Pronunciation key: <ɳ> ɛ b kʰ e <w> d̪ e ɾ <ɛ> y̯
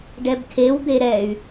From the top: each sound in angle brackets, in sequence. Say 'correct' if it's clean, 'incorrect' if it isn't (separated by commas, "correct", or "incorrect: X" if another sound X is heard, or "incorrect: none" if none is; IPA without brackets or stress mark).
incorrect: ɖ, correct, correct